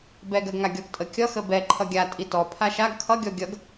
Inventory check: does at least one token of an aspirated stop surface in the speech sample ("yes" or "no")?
yes